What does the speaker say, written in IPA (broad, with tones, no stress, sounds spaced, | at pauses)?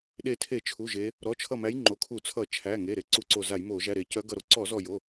ɗ e˧˩ tʰ e˧˩˧ t͡ʃʰ u˩˧˩ ʒ e˨˦ | ɾ ɔ˩˧˩ t͡ʃʰ ʌ˧˩ m æ˨˦ j ŋ͡ǃ o˩˧˩ kʰ u˧˩˧ t͡sʰ ʌ˧˩˧ t͡ʃʰ æ˩˧˩ ŋ e˩˧˩ ɾ e˧˩ ǀ u˧˩˧ ǀ o˧˩ z a˧˩˧ j m o˧˩˧ ʒ æ˩˧˩ ɾ e˧˩˧ c œ˨˦ ɡ ʌ˧˩ ɾ o˨˦ ǀ ɔ˧˩˧ z ɔ˧˩ j o˩˧˩